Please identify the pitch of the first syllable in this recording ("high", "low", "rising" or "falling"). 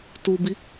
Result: low